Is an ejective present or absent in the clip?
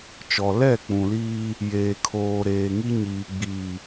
absent